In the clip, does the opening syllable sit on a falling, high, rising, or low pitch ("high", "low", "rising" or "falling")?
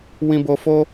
high